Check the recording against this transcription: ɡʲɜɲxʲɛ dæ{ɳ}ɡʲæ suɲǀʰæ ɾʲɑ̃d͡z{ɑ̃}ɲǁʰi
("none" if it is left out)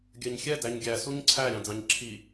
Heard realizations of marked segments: ɲ, ɑ̃

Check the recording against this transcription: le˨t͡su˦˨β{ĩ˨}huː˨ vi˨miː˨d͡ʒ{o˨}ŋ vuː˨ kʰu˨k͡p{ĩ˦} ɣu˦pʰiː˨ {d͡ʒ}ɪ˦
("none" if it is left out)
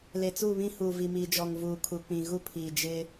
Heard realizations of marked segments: ĩ˦, ɔ˨, ĩ˨, d͡ʒ

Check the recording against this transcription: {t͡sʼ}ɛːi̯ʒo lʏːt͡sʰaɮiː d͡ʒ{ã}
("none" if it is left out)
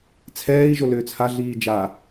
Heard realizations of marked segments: t͡sʰ, a

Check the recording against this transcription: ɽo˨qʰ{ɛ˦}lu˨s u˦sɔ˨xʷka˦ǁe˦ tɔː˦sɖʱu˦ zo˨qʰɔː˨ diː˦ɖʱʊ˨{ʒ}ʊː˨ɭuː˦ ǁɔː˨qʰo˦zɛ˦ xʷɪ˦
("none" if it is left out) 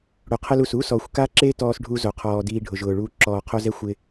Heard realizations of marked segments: ɛ˦, ʒ

